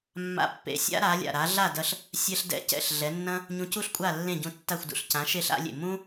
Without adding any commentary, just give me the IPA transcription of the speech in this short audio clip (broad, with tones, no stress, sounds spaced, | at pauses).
mː a̰˧ pː ḛ˩˥ sʲ a̰˥ ɾ a˩˥ lʲ a̰˩ ɾ a˩˥ ɮ a˥˩ d ɐ˧ ɬ | sʲ ɛ˥ ɬ d ɛ̰˥˩ c ɛ̰˥˩ ɬ ɮ ɛ˩˥ nː ɐ̃˥ | ɲ ũ˧ c u˥ ɬ kʷʼ a˥˩ lː ẽ˥˩ ɟ ũ˧ tː a˥˩ xʷ d ṵ˥˩ ɬ c ã˩˥ ʃ e˥˩ ɬ a̰˩˥ lʲ ḛ˩ m ũ˥